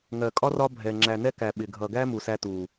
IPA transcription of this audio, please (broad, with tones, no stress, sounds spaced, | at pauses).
ŋ ɜ˨ kʼ ɒ˦ r ɒ˦ bʱ ɛ˨ ŋ͡ǁ æ˨ n ɛ˦ k æ˨ ɓ ɪ˨ ɡʱ ʌ˨ ɡ æ˦ m u˨ s æ˦ t u˨